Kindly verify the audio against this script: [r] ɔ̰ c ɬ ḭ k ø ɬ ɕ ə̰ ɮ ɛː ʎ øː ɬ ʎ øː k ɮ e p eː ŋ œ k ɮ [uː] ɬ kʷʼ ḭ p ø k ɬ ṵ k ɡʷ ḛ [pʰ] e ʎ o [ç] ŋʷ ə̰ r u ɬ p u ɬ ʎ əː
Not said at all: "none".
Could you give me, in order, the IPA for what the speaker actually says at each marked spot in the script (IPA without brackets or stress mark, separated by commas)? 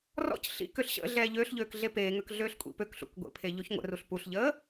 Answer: r, øː, pʰ, ç